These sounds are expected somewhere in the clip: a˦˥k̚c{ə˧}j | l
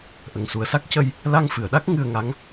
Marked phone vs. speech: correct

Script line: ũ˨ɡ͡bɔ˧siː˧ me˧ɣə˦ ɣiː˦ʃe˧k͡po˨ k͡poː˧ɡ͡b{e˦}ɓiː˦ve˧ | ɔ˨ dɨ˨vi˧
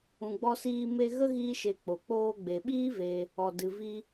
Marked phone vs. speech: incorrect: e˨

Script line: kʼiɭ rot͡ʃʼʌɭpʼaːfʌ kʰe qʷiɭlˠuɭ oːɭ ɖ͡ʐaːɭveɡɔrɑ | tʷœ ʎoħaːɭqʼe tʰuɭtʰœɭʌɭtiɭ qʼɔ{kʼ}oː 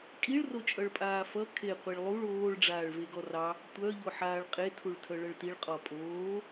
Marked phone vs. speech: incorrect: pʼ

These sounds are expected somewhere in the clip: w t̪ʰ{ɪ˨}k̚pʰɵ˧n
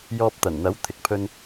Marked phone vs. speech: correct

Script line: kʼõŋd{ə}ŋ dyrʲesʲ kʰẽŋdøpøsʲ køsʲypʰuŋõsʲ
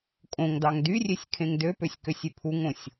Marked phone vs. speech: incorrect: ɑ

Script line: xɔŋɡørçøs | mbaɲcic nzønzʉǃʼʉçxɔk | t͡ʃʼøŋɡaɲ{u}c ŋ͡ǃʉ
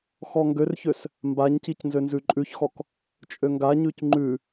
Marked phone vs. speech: incorrect: ʉ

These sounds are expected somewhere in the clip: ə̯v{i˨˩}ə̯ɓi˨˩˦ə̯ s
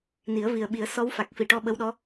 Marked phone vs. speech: correct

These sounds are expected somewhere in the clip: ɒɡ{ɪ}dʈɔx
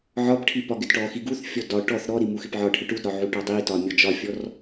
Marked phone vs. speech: correct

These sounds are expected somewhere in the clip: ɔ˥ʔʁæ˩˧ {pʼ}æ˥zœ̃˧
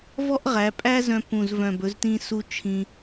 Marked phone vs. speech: correct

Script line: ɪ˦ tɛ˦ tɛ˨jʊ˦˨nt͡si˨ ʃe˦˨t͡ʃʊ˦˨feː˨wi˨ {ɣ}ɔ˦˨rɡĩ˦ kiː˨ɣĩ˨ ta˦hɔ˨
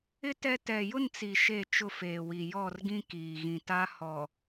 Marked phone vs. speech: incorrect: j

